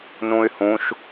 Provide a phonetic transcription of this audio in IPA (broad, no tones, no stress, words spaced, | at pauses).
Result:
nũy̯hũʃ